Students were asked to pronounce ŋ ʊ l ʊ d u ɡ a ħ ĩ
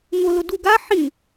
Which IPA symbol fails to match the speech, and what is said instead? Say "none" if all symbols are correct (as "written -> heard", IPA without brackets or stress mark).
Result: none